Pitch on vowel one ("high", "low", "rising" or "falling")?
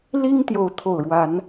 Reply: high